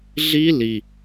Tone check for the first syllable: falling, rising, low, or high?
high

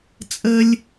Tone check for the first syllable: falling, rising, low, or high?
high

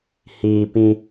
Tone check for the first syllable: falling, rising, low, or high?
low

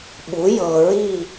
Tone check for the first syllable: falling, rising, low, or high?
rising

